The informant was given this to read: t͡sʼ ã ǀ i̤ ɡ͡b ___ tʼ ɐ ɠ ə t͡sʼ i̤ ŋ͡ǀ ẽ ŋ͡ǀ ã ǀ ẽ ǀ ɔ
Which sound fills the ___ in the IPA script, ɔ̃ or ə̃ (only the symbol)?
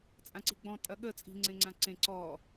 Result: ɔ̃